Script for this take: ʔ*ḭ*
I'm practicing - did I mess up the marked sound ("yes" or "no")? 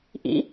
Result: no